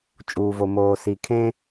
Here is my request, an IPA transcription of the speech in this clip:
t͡ʃʼuː˨vo˨moː˨ si˨kʰẽ˦

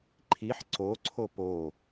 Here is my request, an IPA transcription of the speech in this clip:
ǃʰiħ ǀoǀʰo po

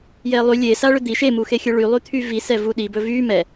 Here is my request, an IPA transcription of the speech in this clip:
jɛlˠy lʲe saɭʏd̪i ʃemuxexʲɵ ɭylˠy t̪ʰyvisɛ vuɗibɵ vy mɛ

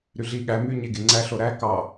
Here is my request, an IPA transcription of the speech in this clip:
ɾyɮi ɠæ my ɲeɡeŋ͡ǀæ ɬoɾæ kɑ

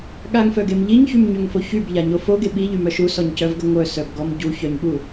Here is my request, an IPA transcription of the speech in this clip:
ɠaŋfœɡem ʎiɲçymɲøŋfo çybʎaɲo foɡe ɓiʎymœ ʃusɔɲcœvɡə ŋʷœsœbɡɔm ɟuçœɲɠu

